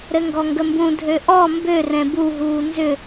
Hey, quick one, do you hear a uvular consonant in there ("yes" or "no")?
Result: no